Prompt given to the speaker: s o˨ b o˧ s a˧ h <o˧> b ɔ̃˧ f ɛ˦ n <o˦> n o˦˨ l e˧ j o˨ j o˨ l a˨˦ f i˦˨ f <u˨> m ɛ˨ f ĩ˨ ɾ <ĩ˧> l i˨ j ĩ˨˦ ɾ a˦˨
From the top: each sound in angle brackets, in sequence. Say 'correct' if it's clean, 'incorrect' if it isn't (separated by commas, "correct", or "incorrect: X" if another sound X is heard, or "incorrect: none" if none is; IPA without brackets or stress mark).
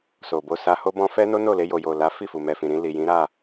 correct, correct, correct, correct